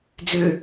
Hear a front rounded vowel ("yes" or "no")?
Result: yes